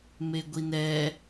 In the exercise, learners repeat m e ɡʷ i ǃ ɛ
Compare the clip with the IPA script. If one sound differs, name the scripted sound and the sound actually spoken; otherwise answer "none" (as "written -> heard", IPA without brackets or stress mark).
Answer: ǃ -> n